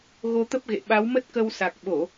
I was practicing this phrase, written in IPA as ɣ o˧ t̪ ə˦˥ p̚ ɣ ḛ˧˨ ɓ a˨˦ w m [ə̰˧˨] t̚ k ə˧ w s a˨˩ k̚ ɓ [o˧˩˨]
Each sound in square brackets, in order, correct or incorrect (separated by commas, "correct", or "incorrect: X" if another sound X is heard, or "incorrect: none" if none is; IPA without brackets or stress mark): incorrect: ə˦˥, correct